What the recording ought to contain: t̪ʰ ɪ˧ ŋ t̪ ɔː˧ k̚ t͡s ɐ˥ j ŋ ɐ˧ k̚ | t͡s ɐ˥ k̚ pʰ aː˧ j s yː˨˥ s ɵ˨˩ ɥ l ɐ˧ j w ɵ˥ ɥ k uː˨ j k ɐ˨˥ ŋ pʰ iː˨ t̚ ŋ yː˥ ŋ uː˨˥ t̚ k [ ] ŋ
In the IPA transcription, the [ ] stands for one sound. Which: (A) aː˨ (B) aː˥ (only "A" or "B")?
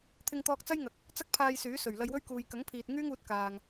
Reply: A